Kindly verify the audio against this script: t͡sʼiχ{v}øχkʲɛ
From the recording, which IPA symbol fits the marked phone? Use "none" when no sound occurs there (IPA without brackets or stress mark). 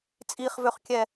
v